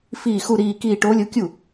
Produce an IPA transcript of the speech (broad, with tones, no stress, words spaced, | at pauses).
fiː˥˧xu˥˧ɾiː˥˧kiː˥˧ ʈoː˧˥lʲo˧˥kʲu˥˩